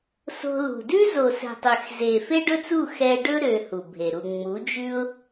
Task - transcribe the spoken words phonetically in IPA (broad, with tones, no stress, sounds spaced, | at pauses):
s o̤˧ l ṳ˨ d ʉ˦ z o˨ s ɛ̤˨ tˤ ø˨ x z e˨ f e˦ ɖ ɵ˦ t͡s u˦˨ x ɛ˧ ɖ ɵ˦ ɾ ø˧ h u˨ bʱ e˨ ɾ u˨ ŋ͡m u˨˦ d͡ʒ ʉ˦ ʊ̯